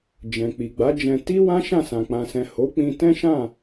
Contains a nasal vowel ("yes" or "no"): yes